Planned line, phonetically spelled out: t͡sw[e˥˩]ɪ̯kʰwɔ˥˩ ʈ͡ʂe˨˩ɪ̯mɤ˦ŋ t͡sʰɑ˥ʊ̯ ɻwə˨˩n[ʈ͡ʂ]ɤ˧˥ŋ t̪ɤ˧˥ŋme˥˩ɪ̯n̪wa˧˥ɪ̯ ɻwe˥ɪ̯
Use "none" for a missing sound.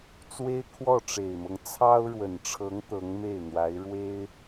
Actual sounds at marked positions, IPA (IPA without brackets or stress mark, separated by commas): e˥, ʈ͡ʂʰ